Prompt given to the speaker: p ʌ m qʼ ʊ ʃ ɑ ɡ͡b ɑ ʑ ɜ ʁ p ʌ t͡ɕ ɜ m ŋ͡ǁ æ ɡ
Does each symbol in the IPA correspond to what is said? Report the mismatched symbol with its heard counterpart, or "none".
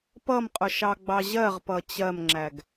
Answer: none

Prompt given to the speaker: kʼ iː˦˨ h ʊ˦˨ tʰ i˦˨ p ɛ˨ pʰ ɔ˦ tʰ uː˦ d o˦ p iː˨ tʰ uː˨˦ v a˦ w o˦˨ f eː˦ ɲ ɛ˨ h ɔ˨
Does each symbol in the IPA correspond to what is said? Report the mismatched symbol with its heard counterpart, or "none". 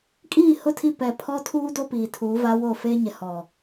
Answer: none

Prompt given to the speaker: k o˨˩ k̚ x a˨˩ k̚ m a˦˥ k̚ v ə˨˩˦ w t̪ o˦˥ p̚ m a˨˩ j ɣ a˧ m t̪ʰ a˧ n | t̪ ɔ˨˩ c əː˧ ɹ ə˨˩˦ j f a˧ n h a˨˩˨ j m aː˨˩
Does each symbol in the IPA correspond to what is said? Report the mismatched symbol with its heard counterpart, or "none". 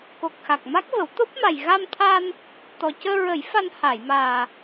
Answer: none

